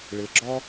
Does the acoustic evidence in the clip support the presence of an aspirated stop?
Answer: no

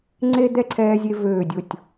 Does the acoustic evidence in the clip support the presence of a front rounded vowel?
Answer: yes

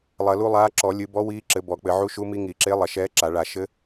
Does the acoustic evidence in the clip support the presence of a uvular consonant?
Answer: no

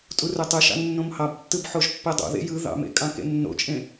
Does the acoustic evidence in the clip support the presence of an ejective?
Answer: yes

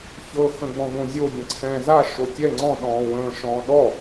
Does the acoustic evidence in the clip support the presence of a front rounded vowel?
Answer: no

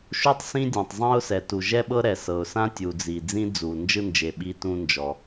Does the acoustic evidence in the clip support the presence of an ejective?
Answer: no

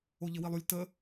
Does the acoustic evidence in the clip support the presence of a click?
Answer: no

